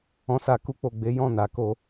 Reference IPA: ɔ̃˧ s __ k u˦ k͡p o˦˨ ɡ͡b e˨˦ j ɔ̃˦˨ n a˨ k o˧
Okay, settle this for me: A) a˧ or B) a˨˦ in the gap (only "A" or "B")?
A